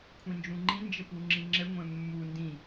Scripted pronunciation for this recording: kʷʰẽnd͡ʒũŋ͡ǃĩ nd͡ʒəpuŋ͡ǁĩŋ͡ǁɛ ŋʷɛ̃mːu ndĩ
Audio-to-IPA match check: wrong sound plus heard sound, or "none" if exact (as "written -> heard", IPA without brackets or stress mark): ẽ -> ĩ